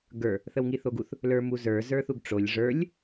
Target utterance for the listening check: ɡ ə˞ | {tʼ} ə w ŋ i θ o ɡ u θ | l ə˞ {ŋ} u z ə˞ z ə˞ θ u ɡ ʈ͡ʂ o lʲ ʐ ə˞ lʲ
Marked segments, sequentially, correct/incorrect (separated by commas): incorrect, incorrect